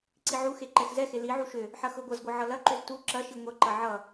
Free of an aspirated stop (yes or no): yes